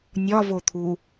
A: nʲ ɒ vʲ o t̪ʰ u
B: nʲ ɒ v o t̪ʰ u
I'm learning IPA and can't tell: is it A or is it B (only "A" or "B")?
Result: B